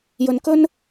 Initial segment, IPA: j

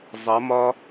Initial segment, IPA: zˤ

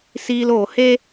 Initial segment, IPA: s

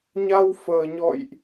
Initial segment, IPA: ɲ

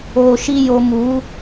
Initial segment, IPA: oː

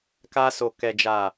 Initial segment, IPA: k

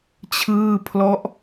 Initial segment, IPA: t͡ɕʰ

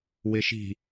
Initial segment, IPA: w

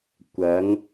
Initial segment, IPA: kʷ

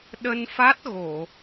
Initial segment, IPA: ɗ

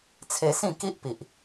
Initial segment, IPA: t͡sʰ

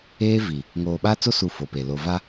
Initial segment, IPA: eː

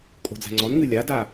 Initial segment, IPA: kʼ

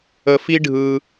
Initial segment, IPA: ə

